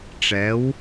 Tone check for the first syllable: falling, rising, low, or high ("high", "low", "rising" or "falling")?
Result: rising